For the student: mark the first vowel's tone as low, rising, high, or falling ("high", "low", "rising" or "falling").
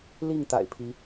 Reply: falling